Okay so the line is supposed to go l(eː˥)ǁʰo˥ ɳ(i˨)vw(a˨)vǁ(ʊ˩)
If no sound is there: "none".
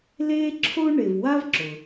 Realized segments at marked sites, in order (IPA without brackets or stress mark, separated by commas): eː˥, e˨, a˥, ʊ˩